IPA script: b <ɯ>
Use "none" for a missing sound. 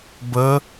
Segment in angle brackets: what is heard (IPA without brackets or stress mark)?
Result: ə